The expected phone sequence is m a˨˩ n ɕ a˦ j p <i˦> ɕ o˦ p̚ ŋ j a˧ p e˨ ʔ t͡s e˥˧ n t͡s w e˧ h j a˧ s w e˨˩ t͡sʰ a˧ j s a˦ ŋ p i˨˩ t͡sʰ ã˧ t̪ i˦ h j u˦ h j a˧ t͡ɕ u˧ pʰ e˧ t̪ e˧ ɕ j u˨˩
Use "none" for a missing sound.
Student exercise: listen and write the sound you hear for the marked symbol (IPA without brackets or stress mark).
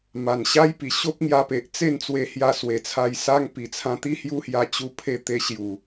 i˨˩